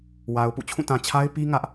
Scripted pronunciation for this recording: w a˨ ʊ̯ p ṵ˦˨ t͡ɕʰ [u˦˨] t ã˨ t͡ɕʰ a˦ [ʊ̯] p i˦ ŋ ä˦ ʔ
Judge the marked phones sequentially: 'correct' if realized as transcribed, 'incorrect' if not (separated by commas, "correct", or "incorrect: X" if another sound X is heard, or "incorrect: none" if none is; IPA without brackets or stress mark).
incorrect: ũ˦˨, incorrect: ɪ̯